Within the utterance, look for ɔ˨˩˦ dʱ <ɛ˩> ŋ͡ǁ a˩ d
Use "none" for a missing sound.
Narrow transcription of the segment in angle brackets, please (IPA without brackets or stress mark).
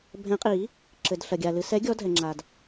ɛ˩